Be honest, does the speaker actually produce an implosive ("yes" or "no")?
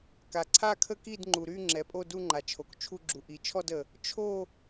no